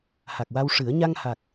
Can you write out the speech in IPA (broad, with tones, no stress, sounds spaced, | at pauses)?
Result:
h a˨˩ k̚ w a˧ w ʂ ɨ˨˩˦ ə̯ ɲ a˧ ŋ h a˨˩ k̚